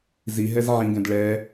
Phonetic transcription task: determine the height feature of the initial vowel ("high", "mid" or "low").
high